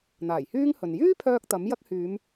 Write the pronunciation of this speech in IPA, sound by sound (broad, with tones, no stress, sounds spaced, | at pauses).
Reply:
n̪ aː˨˩ j h yː˥ ŋ h ɵ˨ n j yː˥ pʰ œː˧ k̚ t̪ ɐ˨˥ m j ɐ˥ k̚ h yː˨˧ m